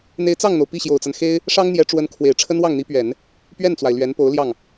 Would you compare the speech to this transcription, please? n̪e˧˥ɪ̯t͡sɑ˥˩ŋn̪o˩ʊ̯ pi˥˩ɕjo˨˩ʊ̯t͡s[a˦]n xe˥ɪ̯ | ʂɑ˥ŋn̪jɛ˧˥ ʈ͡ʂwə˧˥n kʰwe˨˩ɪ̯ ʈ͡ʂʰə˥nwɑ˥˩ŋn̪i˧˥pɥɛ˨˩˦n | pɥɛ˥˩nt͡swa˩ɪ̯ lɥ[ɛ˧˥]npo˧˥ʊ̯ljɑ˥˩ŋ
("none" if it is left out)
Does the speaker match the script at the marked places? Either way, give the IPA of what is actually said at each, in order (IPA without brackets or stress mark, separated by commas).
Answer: a˦, ɛ˧˥